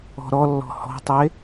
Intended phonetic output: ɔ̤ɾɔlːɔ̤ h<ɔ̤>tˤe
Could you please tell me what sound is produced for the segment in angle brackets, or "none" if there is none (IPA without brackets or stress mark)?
ɔ̤